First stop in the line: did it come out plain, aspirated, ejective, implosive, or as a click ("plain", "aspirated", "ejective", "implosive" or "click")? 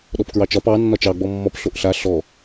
implosive